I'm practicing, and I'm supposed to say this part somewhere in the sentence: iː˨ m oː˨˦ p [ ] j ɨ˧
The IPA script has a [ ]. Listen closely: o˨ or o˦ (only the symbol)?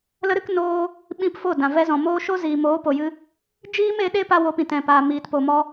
o˨